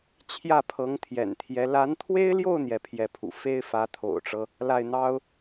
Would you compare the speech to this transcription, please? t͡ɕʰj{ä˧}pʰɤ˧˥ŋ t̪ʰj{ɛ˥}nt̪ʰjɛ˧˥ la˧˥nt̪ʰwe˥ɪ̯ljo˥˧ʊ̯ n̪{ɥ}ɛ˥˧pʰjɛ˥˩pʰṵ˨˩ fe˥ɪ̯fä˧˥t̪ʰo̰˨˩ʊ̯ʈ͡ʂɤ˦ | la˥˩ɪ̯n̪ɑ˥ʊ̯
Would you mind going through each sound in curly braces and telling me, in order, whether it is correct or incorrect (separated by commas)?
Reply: incorrect, incorrect, incorrect